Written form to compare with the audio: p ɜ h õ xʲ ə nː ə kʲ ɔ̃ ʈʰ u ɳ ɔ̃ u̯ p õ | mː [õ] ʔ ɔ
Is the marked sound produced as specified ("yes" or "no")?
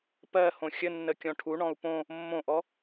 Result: yes